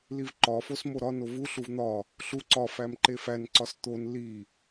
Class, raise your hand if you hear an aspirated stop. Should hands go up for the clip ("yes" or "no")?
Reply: no